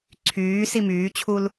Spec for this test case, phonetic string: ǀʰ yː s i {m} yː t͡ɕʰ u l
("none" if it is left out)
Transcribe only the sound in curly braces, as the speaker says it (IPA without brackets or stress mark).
m